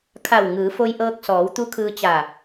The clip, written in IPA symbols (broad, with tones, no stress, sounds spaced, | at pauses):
kʰ a˧˩ w ŋ ɯː˩˧ f o˧ j ʔ ɤː˧ k̚ s ɔː˩˧ w t̪ u˧˥ kʰ ɯː˧ t͡ɕ aː˧˩